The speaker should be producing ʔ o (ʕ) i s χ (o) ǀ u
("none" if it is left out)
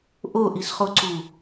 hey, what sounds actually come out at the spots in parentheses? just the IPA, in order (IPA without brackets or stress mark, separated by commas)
ʔ, o